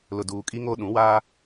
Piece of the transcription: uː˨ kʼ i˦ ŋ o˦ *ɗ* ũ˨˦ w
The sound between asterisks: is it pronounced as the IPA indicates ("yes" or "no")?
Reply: yes